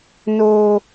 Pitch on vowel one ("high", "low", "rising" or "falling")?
high